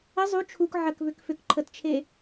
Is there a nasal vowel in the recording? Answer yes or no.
no